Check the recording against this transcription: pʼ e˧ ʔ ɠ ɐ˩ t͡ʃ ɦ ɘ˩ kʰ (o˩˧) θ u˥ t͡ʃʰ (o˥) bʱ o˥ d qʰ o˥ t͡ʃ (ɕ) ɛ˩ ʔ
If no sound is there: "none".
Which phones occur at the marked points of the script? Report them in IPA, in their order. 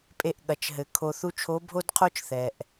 o˧, o˧˥, θ

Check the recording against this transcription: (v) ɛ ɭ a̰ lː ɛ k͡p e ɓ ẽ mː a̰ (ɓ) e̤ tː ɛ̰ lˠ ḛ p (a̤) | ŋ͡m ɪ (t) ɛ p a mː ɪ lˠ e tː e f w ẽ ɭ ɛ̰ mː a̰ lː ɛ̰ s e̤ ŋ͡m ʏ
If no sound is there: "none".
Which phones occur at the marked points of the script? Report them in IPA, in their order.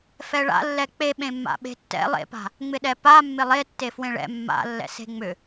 f, ɓ, a̤, ɗ

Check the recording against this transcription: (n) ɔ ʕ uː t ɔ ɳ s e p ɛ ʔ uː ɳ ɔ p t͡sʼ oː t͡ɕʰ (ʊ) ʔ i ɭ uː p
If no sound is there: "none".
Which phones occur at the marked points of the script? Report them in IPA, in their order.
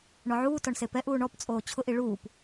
ɳ, ʊ

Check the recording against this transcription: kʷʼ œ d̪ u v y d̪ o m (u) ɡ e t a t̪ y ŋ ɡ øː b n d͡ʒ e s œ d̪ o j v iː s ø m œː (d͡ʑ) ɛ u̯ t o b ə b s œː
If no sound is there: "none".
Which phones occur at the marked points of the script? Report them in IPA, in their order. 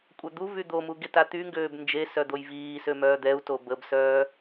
u, d̪

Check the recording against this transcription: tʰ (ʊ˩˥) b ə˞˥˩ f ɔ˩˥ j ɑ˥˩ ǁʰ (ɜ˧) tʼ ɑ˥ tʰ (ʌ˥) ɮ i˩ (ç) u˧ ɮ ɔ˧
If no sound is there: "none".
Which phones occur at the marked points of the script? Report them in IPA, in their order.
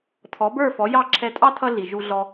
ɔ˩˥, ɛ˧, ʌ˥, ʒ

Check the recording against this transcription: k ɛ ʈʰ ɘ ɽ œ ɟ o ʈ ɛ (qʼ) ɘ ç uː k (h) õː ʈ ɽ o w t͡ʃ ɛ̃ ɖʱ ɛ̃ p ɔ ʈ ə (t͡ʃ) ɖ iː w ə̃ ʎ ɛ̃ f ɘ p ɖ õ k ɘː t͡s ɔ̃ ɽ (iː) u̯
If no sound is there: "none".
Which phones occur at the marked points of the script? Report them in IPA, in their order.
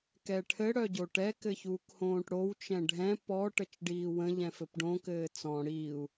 k, h, t͡ʃ, iː

